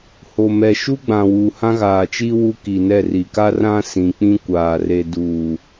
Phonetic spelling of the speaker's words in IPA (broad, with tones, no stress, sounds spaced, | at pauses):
h o˨ m ɛ˨ ʃ u˦ ɡ͡b ã˨ w uː˨ h ã˦ ɣ aː˨ t͡ʃ i˦ w u˦ k i˨ n ɛ˦˨ r i˨ k a˦ r ã˦ s ĩ˨ k͡p ĩ˦ kʷ aː˨ r e˨ d u˨